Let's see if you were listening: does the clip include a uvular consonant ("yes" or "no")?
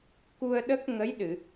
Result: no